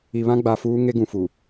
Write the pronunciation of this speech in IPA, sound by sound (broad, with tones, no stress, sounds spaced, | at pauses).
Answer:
i˨ β ã˦ ɡ͡b a˨ f uː˦ ŋ e˦ ɡ ũ˨ f u˨